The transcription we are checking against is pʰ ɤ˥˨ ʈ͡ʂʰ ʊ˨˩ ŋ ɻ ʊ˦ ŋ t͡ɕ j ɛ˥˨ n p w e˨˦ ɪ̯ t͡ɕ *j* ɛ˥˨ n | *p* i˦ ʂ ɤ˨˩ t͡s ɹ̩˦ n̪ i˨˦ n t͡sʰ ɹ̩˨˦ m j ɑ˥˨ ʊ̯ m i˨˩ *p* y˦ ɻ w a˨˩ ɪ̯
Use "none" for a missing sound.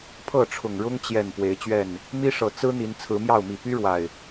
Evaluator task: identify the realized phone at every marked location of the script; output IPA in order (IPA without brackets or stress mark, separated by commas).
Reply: ɥ, m, p